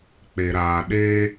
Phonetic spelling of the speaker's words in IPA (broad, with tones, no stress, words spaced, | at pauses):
k͡pe˨ɾaː˨ ɗeː˦